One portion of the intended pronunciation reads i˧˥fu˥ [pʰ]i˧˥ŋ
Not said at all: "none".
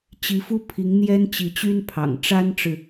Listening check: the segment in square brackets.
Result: pʰ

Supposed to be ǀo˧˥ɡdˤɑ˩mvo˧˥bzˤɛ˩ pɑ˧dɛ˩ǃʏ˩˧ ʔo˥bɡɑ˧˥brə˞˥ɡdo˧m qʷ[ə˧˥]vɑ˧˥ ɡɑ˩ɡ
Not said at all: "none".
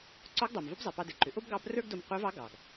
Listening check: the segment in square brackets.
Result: ə˞˧˥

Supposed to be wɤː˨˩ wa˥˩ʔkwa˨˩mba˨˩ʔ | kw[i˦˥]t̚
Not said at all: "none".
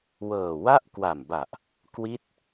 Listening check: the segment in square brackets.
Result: i˦˥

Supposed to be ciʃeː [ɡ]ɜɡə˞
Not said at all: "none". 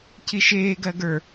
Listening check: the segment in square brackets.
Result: ɡ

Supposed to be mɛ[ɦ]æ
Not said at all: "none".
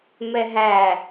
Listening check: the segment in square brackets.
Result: ɦ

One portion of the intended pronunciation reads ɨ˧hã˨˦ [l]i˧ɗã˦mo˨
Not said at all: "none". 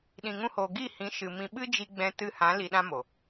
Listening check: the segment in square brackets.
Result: l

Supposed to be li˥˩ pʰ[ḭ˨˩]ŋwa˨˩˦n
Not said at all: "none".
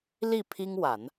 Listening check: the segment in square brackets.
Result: i˥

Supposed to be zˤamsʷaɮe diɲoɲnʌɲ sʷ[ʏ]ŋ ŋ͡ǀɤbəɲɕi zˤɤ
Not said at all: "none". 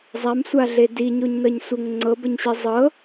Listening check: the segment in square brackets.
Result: ə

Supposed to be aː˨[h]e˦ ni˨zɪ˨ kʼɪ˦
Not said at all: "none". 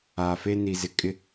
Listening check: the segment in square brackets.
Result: f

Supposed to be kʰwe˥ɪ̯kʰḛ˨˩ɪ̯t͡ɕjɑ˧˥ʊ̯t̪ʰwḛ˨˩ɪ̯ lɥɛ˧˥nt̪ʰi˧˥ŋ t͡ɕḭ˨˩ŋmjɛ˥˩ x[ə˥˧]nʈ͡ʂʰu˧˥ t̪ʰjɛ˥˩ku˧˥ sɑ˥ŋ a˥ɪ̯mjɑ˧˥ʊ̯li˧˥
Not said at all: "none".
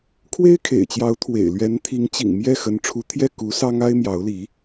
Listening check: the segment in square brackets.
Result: ə˧˥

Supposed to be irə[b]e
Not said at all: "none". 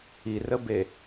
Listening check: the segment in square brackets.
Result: b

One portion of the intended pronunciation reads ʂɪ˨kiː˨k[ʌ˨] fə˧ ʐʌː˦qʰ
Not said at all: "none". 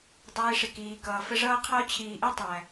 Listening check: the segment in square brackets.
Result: ʌː˨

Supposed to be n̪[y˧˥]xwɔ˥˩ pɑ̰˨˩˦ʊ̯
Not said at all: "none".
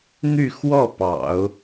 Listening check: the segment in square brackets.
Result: y˥˧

